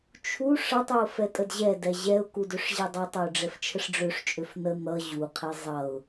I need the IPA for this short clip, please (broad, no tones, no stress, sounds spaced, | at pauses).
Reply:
t͡ʃʰ u ʂ ʌ tˤ ø ʊ̯ f ɛ tʼ ə d ʑ ɛ d ɛ ʑ ɛ ʊ̯ k u d ø ʂ ʑ e dˤ ʌ tˤ ʌ ʊ̯ ɖ͡ʐ ɛ f t͡ʃʰ ə ʂ ɖ͡ʐ ø ʂ t͡ʃʼ ø f n ə n̪ ʌ ʑ u qʰ e zˤ ʌ ʊ̯